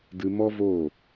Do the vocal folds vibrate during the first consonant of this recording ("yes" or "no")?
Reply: yes